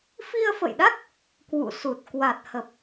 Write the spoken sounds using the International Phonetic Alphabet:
f i˧ ə̯ f ə̰˧˨ j ɗ a˦˥ k̚ | k w ṵ˧˨ s u˨˩ t̚ k w a˨˩ t̚ h ə˨˩ p̚

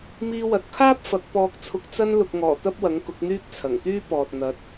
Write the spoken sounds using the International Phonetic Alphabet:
m iː˧ w ɐ˨ t̚ kʰ aː˥ p̚ f ɐ˨˥ k̚ p ɔː˧ k̚ t͡sʰ ʊ˧ k̚ t͡s ɐ˧ n l ʊ˨ k̚ ŋ ɔː˨˩ t̪ ɐ˥ p̚ w ɐ˨˥ ŋ k ʊ˨˥ k̚ n̪ yː˥ k̚ t͡sʰ ɐ˨˩ ŋ t̪ yː˥ p ɔː˨ t̚ n̪ ɐ˨˥ t̚

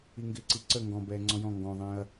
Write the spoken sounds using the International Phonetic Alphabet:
i ŋ ɡ ɪː ǀ i ǀ ə ŋ ɡ ɔ̃ b ɛː ŋ͡ǀ ɔ̃ j ɔ̃ ŋ ɡ ɔ̃ ðˤ ɛ̃ː ɐ̯

